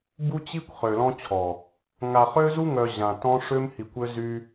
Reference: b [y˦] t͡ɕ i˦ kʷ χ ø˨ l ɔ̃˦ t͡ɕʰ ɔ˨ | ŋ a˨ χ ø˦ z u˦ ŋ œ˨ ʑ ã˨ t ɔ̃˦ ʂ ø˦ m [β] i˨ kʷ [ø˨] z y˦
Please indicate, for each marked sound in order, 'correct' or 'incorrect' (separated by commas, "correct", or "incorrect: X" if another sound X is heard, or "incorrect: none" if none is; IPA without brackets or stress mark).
incorrect: u˦, incorrect: h, incorrect: ø˦